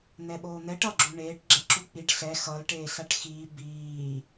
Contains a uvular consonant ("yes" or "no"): no